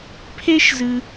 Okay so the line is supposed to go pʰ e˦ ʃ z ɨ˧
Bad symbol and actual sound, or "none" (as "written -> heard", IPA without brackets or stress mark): none